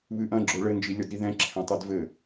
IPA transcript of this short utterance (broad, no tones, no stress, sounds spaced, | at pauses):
β ɨ ʔ ɐ̃ ɡ͡ǁ o ɭ ɘ n d͡ʒ i lʲ ɔ d ɾ i ð ɛ̃ ǁʰ ɛ̃ tˤ ɛ d v ɘ